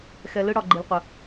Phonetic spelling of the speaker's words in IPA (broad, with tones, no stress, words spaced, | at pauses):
xɛ˧lɯ˦ ɽɒ˧ ɡ͡ǃi˧lqʷə˧